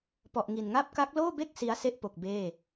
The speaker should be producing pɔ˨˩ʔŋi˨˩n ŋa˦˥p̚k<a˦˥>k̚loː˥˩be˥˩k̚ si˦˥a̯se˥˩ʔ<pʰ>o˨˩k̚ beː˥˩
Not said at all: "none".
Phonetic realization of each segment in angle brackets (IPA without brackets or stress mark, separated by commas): a˦˥, p